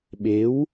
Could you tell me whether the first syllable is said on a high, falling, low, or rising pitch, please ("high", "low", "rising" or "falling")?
rising